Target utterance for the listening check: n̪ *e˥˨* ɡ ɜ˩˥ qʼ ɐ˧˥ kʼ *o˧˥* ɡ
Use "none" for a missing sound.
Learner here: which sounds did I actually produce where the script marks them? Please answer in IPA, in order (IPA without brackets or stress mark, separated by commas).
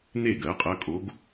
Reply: e˥˨, o˧˥